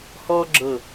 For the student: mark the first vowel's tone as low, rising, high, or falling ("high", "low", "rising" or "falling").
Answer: high